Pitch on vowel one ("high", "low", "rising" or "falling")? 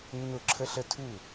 falling